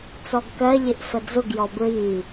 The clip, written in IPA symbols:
t͡s ɔ ɡ k ɜ ʎ ɪ ʔ f ə d͡z ʊ ɡ j ɔ b ɹ i

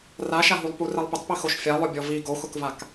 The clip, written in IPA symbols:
r a ʃ a ɦ u lˠ p u r ɛ lˠ p ɪ tˤ p i x o ʃ fʲ a lˠ ʊ bʲ ɔ v i ɡ o x ʊ k v a k

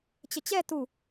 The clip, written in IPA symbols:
t͡ɕ ə t͡ɕ ɛ t u

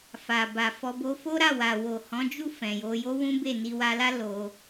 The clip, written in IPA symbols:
f a˨ b a˨ f ɔ˧ b o˧ f o˦ ɾ a˦˨ w a˨ w o˨ h ɔ̃˨˦ d͡ʒ u˦˨ f ɛ̃˨ j o˧ j o˦ w ũ˦ b e˦˨ n i˧ w a˧ l a˦ l o˧

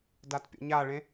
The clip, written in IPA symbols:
d a t pʲ o̰ ɲ a ɭ ẽ

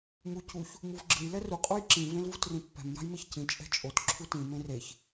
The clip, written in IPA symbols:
m u c u ç | m u v ɡ͡ǁ ɯ j l ɛ r u qʼ u j ǁ ĩ v ẽ l v u t r ĩ pː ɛ̤ m j a̤ j m e ç c ĩ t͡ʃʼ ɛ̤ t͡ʃʼ o t ǁʰ u t ĩ m ẽ r e ç

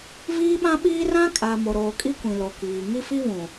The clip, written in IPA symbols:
v iː˦ ɓ ã˦ ɓ iː˦ r ã˦ kʼ a˨ m o˨ ɾ oː˨ kʼ i˦ kʷ ĩ˨ l o˨ k iː˨ ŋ i˦ f i˦ β ũ˨

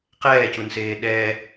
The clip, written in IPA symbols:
q ɛː c u n s eː ɗ ɛː

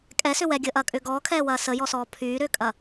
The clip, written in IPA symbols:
kʼ ɛ s ʏ w ɛ ɡʲ əː ʔ ɐː kʼ ʏː ɡ ɔː kʰ ɛː w ɐː s ə j ɔ s ɔː pʰ yː ɾ ʏː kʼ ɐ

